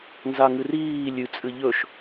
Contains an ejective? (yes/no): yes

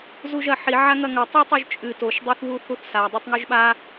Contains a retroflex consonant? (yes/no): no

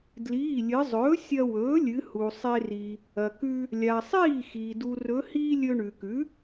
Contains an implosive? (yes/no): no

